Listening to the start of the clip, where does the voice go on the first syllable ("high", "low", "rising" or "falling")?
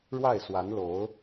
falling